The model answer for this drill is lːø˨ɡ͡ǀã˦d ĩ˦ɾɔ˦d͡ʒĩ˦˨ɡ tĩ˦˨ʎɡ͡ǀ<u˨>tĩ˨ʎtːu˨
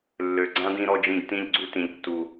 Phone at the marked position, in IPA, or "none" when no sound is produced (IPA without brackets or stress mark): u˦